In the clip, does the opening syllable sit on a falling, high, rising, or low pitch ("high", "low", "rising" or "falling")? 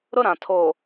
high